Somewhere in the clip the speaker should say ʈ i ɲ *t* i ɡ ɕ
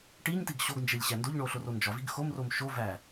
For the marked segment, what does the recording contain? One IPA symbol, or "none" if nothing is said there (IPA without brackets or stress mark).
t